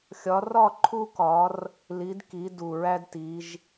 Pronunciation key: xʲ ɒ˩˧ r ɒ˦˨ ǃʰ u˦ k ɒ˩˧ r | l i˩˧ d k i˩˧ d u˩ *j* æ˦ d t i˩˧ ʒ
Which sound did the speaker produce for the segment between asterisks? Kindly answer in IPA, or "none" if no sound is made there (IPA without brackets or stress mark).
ɹ